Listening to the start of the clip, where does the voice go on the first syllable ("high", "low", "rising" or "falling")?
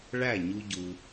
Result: falling